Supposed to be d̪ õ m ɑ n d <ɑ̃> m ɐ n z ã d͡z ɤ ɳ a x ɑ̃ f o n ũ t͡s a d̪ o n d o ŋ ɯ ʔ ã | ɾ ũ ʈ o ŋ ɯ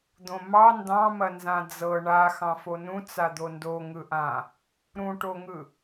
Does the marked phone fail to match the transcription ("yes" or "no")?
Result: no